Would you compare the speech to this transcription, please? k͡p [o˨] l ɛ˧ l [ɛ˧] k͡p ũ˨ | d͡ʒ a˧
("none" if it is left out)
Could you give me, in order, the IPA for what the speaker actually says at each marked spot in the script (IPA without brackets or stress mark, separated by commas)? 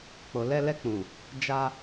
o˨, ɛ˧